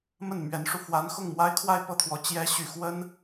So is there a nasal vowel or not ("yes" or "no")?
no